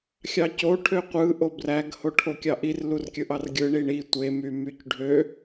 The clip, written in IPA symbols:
xʲɑco ʈʰøqʷɯ ʔobræɡ hoʈʰokʲɑʔir lurkʲɯʔɑrɡʲɯ ɳiɳi tʷe mymycɖʱø

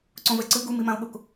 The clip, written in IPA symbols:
ǀõvɛǀɯ ɡumimão̯ɠok

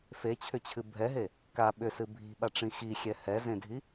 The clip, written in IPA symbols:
fet͡ɕʰʏt͡ɕʰɨ bʱɛɦe | ka ɓʏsɨ bʱi̤ɓaʈ͡ʂĩ xixʲɛ hɛzẽdʱi

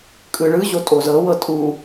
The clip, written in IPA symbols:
kʼɯɭɯ ʑotʼozɤ wɤtʼu

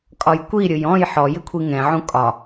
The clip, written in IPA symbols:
kʼɒjkʷiɾʲʊj ɔ̃j ħɔ jɪkʷʰiŋɛ̃ʕũ kʼɒ

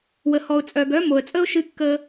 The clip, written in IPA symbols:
wə˨hɔ˨ʊ̯t͡sʼœ˨ ɡœ˨˦mo˨ə̯t͡sʼə˦ʊ̯ ʃɨ˦ kːə˦

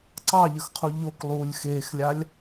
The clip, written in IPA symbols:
ǀɑʎəxqʰu ʎoklˠuːlʲ xeːxlʲalʲ

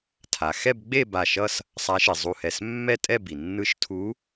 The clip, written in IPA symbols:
tʰa˩ xɛ˥˧bɡ͡be˥˧ ba˧˩ʃʌ˥˧s | sˤa˧˥ʃi˩zˤu˧˩hɛ˧˩s mːɛ˥˧tʼɛ˥˧bi˩ nːɯ˧˥ʃtʰu˧˥

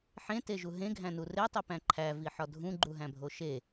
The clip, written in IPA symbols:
ħẽteʒu ɦẽɡʱæ̃nu retˤipæ̃ ǃʰæviħɒ dʱũɡ͡ǃuɦæ̃bʱo ʃe

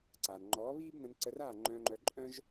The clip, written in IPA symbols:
ǀaː˨nŋ͡ǃɔː˨˦ βiː˦bnə̃˧n ǀə˧raː˦˨ŋ͡ǃœ̃ː˧ŋ͡ǃœ˧ ǃʼœ̃˦ʒ

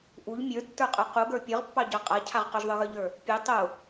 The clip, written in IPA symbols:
ʔuʎ mʲə˞tːə˞qʼə˞ quɡə˞ pʲə˞ʁpːɑɟɑ qʼacʰaʁ qʊʒðˤə˞ɣə˞ʎə˞ | pʲe tˤʊ

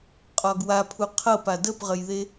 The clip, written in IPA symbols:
qʼɒɡwapʰu qʰɤpa dəpʁəjðe

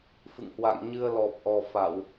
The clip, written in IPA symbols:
fɨ̰˧˨ŋhwa̰˧˨ŋ ɲɨ˧ə̯lɔ˨˩p̚ʔɔ˨˩ fa˧˩˨w

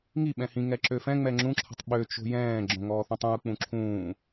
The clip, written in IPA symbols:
ŋi ɓɛ̃hĩ ŋɛǁøfɛ̃ ŋ͡mɛŋ͡ǁũ ǁʰə̤tˤɓø t͡ʃo̤jɛ̃ː ɡ͡ǁõŋɔːθõtˤɛ̃u̯ k͡pũǁʰũː

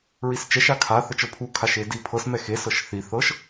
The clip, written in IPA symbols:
ɹist͡ʃɛʃ akʰa θət͡ʃɤpʰu kʰaʃedipʰɤs mɛxe sɤʃθi θɤʃ

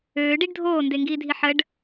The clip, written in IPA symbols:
øː ɖiɖdʱoː ndeŋɡiːdʱiħəɖ

